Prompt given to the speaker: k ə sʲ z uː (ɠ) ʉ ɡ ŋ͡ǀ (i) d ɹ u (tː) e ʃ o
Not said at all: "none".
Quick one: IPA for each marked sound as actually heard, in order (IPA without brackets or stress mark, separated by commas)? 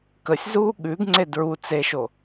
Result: ɠ, e, t͡s